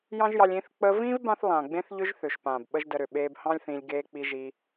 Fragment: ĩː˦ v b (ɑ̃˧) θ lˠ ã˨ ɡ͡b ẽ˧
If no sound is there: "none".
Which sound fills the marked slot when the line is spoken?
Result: ã˧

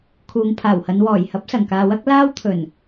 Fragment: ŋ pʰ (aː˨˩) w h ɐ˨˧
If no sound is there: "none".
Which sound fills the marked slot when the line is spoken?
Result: aː˨˩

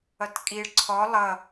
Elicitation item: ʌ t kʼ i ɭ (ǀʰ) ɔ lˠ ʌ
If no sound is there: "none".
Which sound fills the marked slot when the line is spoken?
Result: ǀʰ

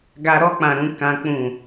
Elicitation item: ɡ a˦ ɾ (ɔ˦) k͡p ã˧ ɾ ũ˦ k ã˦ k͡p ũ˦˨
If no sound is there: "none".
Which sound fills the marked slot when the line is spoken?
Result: ɔ˦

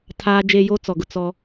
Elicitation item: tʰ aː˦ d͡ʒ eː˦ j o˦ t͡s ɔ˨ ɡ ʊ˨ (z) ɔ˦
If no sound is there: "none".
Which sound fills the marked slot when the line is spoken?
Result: t͡s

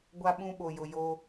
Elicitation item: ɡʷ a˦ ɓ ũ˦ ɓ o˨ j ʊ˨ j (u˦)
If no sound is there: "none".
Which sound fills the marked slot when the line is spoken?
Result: o˦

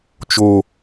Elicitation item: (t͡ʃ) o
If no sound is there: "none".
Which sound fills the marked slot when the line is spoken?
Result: t͡ʃ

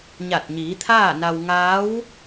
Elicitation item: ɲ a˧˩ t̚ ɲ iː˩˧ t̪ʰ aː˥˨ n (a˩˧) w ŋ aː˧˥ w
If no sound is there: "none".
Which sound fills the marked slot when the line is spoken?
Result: a˧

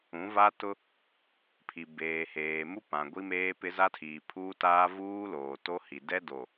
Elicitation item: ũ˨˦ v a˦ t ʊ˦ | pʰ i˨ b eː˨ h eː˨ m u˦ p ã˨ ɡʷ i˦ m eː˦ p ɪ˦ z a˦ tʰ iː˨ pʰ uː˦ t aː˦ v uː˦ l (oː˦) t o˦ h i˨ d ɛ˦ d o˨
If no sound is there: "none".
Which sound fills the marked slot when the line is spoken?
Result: oː˨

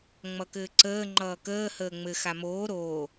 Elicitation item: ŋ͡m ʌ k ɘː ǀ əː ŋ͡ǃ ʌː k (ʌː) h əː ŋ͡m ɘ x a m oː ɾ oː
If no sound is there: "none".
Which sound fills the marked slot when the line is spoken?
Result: əː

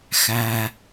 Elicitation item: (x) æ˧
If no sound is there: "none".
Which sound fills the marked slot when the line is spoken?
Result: x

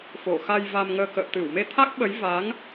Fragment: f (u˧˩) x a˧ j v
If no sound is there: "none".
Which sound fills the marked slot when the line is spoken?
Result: o˧˩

